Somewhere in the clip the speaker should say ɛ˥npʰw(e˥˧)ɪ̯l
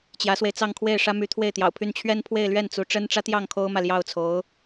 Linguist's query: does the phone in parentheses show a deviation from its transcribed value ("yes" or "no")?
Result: no